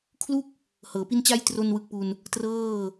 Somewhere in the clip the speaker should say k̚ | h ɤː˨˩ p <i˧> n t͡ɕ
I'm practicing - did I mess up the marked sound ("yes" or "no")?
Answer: yes